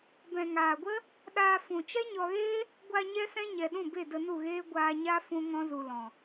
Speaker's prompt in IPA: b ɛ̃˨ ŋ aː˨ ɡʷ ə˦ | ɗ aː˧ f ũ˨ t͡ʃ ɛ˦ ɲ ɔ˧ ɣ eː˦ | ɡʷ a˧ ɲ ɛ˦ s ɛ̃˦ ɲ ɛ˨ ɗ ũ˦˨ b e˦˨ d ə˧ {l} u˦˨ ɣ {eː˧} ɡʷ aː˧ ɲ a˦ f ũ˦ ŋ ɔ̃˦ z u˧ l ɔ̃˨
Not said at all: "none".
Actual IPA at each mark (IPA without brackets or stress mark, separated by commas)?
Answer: n, eː˦